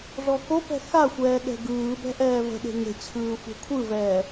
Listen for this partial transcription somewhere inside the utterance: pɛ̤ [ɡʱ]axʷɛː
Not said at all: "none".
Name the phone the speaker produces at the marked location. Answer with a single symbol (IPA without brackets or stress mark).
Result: x